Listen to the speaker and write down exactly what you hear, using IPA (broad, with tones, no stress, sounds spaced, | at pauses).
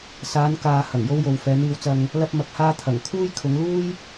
s aː˨˧ n k aː˨ h ɐ˨˩ ŋ j o˧ w j o˨ w f ɛː˨˧ n̪ iː˧ w t͡s ɐ˧ ŋ | l ɐ˧ p̚ m ɐ˨ k̚ h aː˧ t̪ʰ ɐ˨˩ ŋ kʰ uː˥ j kʰ ʊ˨˧ ŋ l uː˥ j